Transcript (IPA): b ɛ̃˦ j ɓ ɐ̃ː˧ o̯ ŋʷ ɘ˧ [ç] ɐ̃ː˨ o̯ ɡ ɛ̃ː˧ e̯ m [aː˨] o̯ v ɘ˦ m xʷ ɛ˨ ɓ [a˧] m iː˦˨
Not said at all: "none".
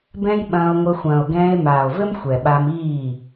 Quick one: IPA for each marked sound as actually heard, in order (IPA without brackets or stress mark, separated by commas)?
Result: xʷ, aː˨, a˧